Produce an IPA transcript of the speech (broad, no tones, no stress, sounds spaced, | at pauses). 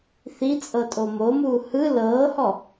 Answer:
θ i t͡sʼ ɤ tʼ o m o m uː h ɯ l ɤː h ɔ